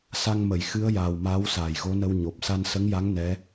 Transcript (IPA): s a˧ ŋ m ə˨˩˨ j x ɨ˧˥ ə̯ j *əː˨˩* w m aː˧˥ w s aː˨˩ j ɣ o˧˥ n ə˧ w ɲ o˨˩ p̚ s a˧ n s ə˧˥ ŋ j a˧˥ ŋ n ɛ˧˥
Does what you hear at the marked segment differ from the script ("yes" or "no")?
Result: yes